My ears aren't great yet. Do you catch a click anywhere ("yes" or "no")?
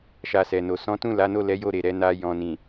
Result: no